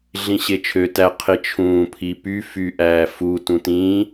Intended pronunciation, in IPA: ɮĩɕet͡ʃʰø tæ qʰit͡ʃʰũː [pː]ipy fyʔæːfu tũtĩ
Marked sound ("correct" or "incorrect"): incorrect